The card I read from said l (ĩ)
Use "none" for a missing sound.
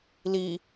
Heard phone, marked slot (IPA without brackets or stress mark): i